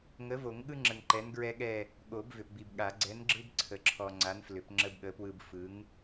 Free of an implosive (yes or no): no